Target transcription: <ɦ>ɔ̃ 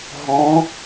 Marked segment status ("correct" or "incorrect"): correct